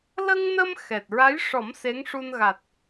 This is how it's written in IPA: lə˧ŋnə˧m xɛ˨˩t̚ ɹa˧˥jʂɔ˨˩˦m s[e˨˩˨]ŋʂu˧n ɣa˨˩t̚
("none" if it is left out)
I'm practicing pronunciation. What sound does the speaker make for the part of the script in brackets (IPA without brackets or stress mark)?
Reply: e˧˥